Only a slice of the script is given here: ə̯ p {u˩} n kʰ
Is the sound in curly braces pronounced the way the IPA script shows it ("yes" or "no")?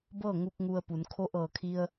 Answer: no